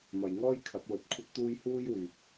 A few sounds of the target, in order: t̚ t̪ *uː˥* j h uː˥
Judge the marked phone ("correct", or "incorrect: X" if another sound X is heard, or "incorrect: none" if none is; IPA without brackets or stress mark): correct